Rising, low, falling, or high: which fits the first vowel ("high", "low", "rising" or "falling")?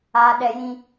high